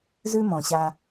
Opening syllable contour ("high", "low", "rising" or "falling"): high